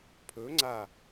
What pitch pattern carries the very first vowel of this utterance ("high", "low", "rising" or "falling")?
rising